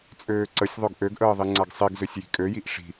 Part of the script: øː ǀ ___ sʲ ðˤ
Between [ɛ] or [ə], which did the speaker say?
ə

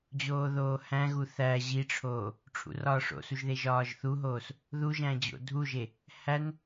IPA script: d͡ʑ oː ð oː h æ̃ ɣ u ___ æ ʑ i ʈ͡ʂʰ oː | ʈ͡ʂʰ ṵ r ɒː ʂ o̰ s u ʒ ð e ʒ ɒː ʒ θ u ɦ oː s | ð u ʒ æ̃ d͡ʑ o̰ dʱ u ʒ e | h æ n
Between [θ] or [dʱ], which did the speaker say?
θ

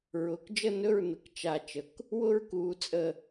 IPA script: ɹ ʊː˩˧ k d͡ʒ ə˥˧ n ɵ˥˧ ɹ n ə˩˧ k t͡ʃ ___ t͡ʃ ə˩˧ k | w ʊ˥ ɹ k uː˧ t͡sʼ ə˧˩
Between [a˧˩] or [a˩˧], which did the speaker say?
a˧˩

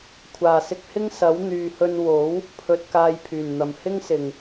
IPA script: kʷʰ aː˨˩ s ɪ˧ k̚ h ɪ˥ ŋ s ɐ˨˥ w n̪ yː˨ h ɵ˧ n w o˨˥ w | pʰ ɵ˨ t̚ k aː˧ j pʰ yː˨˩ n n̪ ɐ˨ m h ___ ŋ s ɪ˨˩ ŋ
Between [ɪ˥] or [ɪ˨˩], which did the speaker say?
ɪ˥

